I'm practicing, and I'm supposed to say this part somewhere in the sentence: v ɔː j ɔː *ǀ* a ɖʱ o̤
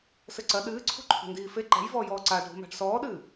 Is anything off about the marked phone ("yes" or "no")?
no